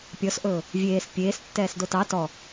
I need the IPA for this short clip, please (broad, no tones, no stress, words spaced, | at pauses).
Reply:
pʲɔsʔɵː | vʲeːs pʲeːs tːɛːsdotɑ tɔ